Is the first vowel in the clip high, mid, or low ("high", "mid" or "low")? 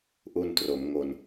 high